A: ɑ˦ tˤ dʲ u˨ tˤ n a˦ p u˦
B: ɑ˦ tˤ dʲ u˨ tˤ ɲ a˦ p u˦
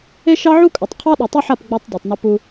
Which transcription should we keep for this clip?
A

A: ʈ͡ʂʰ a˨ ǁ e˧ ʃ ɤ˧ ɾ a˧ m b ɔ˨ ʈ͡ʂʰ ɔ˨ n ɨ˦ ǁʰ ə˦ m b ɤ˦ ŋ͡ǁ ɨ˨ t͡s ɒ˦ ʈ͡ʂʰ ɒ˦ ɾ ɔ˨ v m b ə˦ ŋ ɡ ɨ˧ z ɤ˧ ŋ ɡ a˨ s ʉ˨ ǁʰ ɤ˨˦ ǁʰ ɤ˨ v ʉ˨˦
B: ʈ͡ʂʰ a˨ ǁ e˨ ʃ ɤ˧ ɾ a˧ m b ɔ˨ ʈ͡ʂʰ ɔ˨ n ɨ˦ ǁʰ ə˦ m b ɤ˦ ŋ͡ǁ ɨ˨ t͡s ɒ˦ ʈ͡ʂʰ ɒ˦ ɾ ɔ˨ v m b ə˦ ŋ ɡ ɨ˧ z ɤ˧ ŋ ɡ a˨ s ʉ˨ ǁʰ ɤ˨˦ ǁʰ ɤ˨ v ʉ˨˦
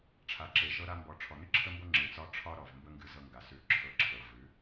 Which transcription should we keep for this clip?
B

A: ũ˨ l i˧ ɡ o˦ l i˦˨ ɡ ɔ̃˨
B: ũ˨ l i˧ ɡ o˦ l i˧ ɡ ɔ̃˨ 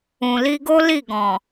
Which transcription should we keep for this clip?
A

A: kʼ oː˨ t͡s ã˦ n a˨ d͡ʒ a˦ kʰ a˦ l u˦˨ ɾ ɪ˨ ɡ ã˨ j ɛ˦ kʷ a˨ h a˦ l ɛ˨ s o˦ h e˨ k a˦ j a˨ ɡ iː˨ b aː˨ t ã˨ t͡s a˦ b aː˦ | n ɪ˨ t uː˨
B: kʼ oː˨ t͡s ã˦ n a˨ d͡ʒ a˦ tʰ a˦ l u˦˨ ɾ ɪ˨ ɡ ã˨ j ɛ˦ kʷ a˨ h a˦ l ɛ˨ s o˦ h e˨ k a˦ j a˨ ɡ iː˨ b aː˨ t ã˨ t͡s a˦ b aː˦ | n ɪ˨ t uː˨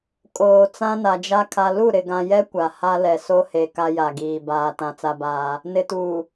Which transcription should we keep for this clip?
A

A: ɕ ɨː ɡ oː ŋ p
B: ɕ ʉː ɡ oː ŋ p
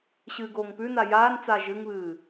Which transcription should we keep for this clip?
A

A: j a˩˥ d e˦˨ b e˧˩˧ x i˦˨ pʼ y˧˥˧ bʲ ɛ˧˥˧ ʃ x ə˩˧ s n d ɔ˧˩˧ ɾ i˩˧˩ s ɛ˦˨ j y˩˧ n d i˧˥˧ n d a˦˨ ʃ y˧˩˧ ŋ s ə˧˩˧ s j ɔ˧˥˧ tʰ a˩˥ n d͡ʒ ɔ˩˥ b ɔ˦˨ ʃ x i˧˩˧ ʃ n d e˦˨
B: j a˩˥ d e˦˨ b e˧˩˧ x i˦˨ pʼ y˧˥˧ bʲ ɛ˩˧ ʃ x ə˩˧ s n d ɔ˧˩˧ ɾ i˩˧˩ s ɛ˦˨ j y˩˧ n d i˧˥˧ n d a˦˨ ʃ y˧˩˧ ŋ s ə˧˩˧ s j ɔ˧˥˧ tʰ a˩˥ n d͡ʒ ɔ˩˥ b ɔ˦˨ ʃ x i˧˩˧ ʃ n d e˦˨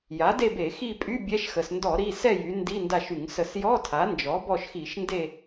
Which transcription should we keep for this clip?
A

